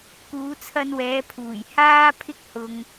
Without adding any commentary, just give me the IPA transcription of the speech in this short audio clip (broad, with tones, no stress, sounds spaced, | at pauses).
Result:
k uː˨˧ t͡sʰ ɐ˧ n w ɛː˨˧ pʰ uː˨˩ j h aː˥ pʰ ɪ˥ k̚ h ʊ˧ ŋ